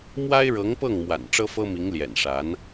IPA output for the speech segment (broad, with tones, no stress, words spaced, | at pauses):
mwa˥ɪ̯ɻɤ˧˥ŋpɤ˥˩ŋmwa̰˨˩n ʈ͡ʂɤ˥fɤ˥mi˧˥ŋ ljɛ̰˨˩nʂa˧˥n